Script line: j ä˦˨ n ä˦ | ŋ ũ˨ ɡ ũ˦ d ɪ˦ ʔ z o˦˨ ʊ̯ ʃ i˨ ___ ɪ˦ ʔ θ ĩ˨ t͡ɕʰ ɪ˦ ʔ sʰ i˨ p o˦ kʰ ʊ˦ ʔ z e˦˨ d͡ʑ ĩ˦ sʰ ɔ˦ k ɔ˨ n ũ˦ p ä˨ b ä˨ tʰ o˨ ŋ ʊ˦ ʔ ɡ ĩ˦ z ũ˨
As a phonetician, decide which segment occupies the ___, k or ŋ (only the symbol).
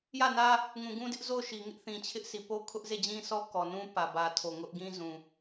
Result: ŋ